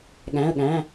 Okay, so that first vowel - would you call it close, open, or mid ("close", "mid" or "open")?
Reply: open